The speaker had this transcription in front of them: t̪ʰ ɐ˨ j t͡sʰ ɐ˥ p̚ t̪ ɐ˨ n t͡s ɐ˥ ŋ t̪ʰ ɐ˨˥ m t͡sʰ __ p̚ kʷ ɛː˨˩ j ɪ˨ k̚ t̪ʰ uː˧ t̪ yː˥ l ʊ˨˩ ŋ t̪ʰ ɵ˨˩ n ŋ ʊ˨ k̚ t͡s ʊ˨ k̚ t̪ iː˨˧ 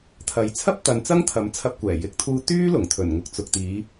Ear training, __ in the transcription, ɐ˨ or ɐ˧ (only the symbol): ɐ˧